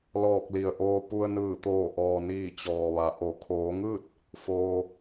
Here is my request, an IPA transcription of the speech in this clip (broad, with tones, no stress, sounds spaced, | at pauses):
l ɔː˧˩ k̚ l i˩ ə̯ ʔ oː˧ p u˧ ə̯ n ɯː˧˩ t̪ oː˧˩ ʔ ɔː˩ n iː˧˩ t͡ɕ ɔː˩ ʋ a˩˧ ʔ o˩˧ kʰ oː˩˧ ŋ ɯː˥˨ t̚ | f oː˩